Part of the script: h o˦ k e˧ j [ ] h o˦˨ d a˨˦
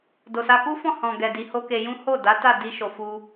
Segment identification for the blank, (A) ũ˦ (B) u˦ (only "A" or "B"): A